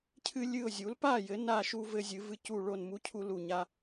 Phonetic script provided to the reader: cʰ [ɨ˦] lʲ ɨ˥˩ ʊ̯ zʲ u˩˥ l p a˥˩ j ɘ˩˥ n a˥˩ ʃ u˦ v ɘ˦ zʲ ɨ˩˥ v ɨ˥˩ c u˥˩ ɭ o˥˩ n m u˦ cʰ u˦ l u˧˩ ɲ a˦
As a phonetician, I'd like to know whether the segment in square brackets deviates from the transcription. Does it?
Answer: no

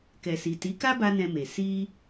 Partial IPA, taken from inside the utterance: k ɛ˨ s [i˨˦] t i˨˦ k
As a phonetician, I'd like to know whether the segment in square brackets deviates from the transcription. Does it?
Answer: yes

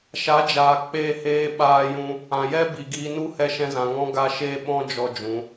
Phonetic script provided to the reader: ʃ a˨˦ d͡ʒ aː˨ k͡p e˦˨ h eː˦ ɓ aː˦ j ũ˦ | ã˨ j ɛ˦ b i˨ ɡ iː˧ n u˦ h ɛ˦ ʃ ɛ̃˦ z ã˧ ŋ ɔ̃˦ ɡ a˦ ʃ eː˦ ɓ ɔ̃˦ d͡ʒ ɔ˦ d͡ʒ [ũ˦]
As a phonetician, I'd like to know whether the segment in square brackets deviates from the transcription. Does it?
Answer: yes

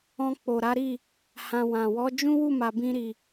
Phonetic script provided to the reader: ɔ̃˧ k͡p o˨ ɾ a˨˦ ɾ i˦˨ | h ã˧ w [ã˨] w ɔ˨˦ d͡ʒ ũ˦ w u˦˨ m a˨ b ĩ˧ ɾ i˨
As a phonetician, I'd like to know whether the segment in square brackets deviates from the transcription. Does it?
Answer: no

